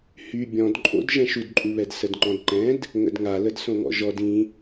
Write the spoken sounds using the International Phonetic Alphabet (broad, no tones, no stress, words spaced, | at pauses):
hy bʲɔ̃dǃʼo̰d ʒɛ̃ʃudǃʼuβɛd sədŋ͡ǃɔ̃dǃɛ̃d | ŋə̰dŋa lədsõŋɔ̰ʒɔd ĩ